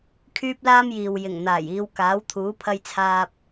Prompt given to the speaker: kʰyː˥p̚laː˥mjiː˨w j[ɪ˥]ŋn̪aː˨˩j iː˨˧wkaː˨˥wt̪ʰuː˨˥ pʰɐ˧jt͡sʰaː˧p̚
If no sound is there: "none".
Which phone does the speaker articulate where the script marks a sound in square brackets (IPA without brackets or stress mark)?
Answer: ɪ˨˩